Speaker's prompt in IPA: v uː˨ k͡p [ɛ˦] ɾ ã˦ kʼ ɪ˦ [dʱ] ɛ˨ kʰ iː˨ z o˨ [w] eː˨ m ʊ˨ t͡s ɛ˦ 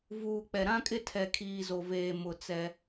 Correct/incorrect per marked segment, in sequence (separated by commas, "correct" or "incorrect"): incorrect, incorrect, incorrect